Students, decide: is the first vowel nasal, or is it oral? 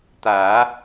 oral